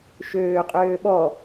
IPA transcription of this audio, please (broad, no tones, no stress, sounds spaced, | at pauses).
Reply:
ʃ øː qʼ øː ɓ ɔ